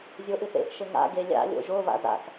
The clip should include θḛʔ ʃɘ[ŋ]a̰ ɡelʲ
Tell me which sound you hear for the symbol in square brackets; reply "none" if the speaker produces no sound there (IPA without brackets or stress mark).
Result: ŋ